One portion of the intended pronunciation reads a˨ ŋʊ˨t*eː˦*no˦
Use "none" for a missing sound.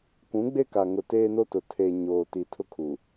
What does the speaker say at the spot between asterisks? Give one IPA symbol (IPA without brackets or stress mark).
eː˦